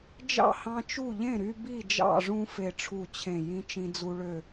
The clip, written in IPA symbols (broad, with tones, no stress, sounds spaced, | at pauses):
d͡ʒ ɑ̰˥˨ h ɑ̃˦ t͡ʃ u˥˨ ʎ ẽ˥˨ ɾ y˦ b i˥˨ d͡ʒ ɑ̰˥˨ ʐ ũ˦ f e˥˨ ʈ͡ʂʰ u˥˨ t͡ɕʰ ẽ˥˨ j ĩ˦ t͡ʃ ĩ˦ d͡z u˦ ɭ ø˥˨